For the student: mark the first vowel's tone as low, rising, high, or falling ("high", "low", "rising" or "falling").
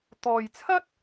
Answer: low